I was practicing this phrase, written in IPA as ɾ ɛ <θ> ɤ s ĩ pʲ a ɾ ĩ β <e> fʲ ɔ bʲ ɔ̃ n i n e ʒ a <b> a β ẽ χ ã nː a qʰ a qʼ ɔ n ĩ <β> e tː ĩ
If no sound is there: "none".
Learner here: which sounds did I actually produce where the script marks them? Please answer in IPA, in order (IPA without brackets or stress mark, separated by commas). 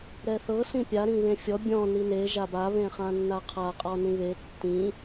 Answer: θ, ẽ, b, β